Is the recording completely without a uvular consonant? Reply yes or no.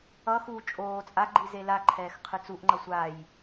no